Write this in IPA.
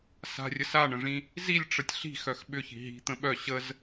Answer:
s a̤ rʲ ə s a ɳ ə̃ ʐ ĩ | z i lʲ ʈ͡ʂ ə tʲ ɬ i̤ x œ x ɓ ʏ ç i̤ ɦ i̤ t̪ ə̃ ɓ œ ɕ ə z

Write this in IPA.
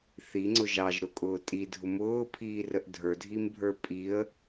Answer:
θ i ŋ͡ǀ ʊ ʒ ɑ ʒ ɾ ʊ kʼ ʊː tʼ i dʱ ʊ m ʊː pʰ iː r ə ʔ dʱ ə˞ dʱ i m bʱ ə˞ pʼ i ə̯

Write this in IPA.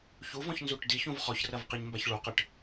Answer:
ç u v ɔ̃ ç n z u ʈ d i ç ũ v χ ɔ ç r ɐ v q i ɲ m b a ç ɭ u q ɘ ʈ

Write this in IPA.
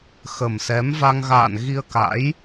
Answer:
x ə˨˩ m s ɛ˨˦ m v a˧ ŋ ɣ a̰ː˧˨ n ɣ i˧ ə̯ k a̰˧˥ j

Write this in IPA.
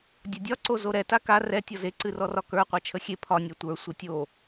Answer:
dʲ a dʲ ɒ ǀ o z o ɾ ɛ t a k a r ɛ tʲ ɔ z e ǀ ɨ r ɔ r ɒ k ə˞ qʷ a t͡ʃʰ ə xʲ e pʰ ɒ nʲ ɛ tʷ ə˞ sʷ ɨ tʲ o

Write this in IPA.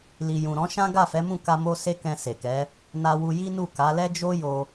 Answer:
l i˨ j ũ˨ ɾ ɔ̃˨˦ ʃ ã˦ ɡ a˦˨ f ɛ˨˦ m ũ˦˨ k a˧ m o˦ s e˦ k ɛ̃˧ s e˨ k ɛ˨˦ | n a˧ w u˧ j i˦ n u˦˨ k a˨˦ l ɛ˦ d͡ʒ o˦ j o˧

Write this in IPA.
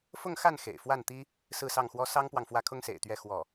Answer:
f ʊ˥˧ ŋ x a˥˩ n x ḛ˨˩ ɪ̯ f w a˥˩ n t̪ i˥ | s ɹ̩˥˧ s ɑ˥˩ ŋ x w ɔ˥ s ɑ˥ ŋ p w ɑ˨ ŋ f w ä˥˩ kʰ ʊ˥ ŋ s ḛ˨˩ ɪ̯ t̪ ɥ ɛ˥˧ x w ɔ˥˩

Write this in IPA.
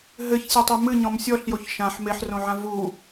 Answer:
ɦ ɘ ç sʲ ɘ tˤ e m ɨ ɲ ɔ̃ m sʲ ɔ ɬ j o ç ʃ ã ħ m e ħ r õ ʕ ã v u

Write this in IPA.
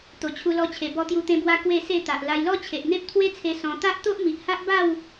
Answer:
t̪ o˨˩ t͡ɕʰ u˧ l ɔ˧ t͡ɕʰ e˨˩ b ɔ˧ t̪ j u˧ t̪ ẽ˧ b w a˧ k w e˥˧ s e˥˧ t̪ a˨ ʔ l a˧ j l ɔ˦ t͡ɕʰ e˨ ʔ n̪ e˦ p̚ t̪ʰ w e˦ t͡sʰ e˧ s ɔ̃˧ t̪ a˦ ʔ t̪ o˦ ʔ m i˨ ʔ h a˦ ʔ b a˥˧ w

